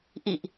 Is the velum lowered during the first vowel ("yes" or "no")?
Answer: no